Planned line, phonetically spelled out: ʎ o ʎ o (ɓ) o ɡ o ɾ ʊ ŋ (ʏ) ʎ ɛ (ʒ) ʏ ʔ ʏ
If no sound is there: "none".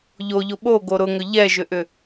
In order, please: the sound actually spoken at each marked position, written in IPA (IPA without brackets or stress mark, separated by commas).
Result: ɓ, ʏ, ʒ